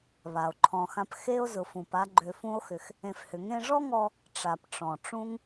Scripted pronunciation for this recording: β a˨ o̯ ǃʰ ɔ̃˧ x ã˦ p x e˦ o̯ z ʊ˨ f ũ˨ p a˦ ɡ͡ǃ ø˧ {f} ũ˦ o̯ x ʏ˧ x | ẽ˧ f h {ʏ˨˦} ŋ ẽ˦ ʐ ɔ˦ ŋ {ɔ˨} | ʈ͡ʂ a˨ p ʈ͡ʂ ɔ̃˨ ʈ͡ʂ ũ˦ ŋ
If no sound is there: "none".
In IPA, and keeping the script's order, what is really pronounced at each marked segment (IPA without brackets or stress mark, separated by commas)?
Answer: f, ʏ˨˦, ɔ˧